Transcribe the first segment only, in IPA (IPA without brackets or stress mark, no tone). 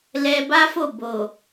l